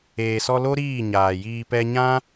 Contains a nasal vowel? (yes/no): yes